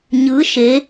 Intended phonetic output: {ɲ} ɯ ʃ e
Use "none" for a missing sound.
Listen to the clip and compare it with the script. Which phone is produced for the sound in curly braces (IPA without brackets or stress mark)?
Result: ɲ